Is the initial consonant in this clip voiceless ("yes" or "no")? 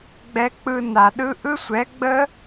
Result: no